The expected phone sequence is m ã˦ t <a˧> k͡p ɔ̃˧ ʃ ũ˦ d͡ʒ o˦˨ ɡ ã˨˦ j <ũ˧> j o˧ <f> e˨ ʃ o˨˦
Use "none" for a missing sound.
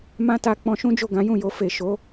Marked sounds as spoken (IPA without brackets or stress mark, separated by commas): a˧, ũ˦˨, f